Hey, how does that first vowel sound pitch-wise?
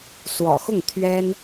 low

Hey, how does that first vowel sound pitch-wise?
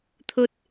high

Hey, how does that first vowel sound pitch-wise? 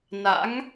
rising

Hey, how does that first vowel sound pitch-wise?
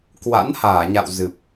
rising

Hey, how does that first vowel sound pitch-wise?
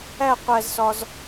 falling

